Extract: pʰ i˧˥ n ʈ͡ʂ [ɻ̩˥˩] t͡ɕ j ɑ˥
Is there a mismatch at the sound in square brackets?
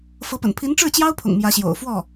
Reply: no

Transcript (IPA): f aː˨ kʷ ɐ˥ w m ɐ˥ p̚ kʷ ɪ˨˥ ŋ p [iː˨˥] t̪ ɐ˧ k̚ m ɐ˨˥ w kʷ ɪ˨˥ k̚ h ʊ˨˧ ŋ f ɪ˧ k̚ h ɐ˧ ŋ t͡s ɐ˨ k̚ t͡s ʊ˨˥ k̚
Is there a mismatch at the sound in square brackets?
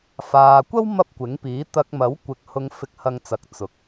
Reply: no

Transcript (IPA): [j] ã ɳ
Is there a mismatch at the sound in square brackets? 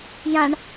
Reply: no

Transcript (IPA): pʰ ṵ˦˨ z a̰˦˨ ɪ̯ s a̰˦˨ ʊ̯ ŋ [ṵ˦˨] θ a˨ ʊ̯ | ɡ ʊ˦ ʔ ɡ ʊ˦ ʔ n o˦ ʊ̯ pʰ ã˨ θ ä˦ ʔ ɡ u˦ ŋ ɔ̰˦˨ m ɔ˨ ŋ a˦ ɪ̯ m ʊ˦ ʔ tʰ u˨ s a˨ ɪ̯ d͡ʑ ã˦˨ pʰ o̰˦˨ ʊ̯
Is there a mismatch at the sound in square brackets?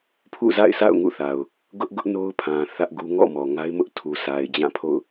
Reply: no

